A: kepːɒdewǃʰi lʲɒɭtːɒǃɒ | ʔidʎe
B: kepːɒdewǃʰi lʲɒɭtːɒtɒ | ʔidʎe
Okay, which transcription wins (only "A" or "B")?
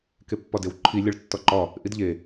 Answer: A